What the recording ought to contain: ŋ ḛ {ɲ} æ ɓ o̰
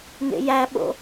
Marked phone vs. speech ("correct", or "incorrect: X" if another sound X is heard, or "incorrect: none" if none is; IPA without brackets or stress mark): incorrect: j